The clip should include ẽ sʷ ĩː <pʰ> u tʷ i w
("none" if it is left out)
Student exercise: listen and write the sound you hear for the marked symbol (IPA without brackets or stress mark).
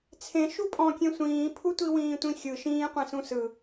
pʰ